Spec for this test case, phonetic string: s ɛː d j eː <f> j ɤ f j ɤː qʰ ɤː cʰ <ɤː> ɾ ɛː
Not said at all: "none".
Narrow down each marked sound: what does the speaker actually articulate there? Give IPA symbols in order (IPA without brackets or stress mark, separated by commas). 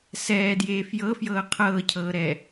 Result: f, ɤː